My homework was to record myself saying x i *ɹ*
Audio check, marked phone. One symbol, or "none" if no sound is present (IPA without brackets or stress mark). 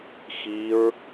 ɹ